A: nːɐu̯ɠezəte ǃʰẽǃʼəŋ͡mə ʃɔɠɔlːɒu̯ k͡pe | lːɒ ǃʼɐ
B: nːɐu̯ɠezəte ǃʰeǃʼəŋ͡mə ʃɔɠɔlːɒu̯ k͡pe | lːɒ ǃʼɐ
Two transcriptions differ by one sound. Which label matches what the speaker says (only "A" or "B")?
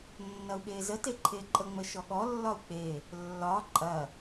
B